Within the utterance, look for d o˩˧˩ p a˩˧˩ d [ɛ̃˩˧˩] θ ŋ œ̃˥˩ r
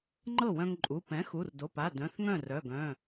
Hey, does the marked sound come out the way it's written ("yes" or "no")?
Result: no